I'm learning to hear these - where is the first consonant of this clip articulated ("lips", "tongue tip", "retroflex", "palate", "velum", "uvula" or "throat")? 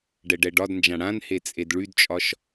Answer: retroflex